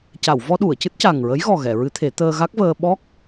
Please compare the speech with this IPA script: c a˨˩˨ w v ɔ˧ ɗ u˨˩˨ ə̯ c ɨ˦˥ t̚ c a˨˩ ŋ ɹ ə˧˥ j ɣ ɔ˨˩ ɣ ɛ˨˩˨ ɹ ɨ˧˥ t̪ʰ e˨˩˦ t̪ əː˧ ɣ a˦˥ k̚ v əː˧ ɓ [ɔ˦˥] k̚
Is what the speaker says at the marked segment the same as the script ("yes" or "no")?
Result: yes